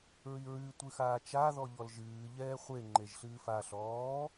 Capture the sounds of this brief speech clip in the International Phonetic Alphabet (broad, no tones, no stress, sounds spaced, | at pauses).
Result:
ɹ i ɹ ɨ tʷ ɨ x aː t͡ʃ a ð ɔ ʎ ɔ l ʒ ɨː ʎ ɛː χʷ e ŋ͡ǃ e ʒ ɬ ɨː f a ɬ ɔː